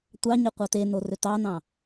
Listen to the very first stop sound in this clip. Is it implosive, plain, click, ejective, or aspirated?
plain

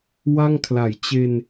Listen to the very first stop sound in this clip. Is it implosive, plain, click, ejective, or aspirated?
aspirated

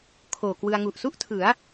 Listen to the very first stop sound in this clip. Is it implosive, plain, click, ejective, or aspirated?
aspirated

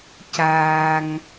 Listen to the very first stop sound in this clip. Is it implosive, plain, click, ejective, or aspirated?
plain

